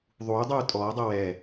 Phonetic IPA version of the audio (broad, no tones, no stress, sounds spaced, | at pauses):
ðˤ uː dˤ uː tʼ ɔː dˤ ɤ w ɛ